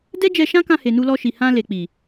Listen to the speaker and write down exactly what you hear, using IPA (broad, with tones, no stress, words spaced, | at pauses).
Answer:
dɛ˦d͡ʒɛ˧ʃã˦kã˧ he˨nu˧lɔ˧ʃi˨ hã˧ le˨k͡pi˨